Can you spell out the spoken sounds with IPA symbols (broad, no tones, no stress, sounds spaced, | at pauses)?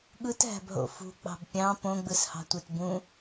ɠ ɯ t ɦ æ̤ b ɦ o̰ f ṳ k͡p ɑ̤ b pʲ ɑ̃ p õ ɡ͡b ɯ s h ɑ̤ tʷ e t b ũ